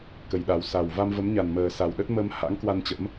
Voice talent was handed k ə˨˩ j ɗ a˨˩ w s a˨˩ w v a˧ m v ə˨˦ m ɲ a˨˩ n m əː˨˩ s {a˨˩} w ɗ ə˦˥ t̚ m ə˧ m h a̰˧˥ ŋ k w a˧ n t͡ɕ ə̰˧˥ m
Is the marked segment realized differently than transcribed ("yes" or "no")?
no